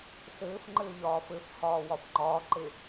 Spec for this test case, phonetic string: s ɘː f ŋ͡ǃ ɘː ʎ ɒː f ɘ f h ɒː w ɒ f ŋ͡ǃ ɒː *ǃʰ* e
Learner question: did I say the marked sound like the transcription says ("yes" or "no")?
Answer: no